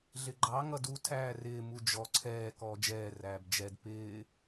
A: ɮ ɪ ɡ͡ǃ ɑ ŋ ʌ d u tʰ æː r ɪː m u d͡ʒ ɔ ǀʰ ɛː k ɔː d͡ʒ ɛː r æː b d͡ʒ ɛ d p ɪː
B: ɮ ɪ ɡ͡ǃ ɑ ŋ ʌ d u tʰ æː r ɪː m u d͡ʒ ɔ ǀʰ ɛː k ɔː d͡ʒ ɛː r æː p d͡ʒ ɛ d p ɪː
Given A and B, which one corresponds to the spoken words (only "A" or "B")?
A